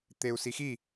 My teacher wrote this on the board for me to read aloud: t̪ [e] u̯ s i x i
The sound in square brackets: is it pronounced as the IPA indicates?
yes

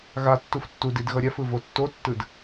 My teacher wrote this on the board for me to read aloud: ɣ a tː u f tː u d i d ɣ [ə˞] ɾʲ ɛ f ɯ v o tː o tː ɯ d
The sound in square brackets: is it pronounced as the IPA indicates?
no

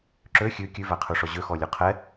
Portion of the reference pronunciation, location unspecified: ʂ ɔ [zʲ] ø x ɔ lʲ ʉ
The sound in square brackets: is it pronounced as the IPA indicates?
no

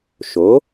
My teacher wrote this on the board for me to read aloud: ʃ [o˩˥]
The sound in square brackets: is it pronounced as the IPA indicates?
yes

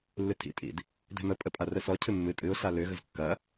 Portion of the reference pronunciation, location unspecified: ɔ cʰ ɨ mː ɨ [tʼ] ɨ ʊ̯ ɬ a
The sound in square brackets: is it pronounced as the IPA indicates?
yes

